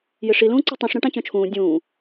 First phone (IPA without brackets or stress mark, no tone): j